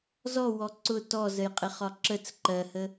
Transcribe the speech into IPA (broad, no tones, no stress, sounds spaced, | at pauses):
z ɔ w ɔ ǀ ʊ t ɔ z ə j qʼ ɪ χ ɒ ǁ ə t͡s ǃ ɜ h ə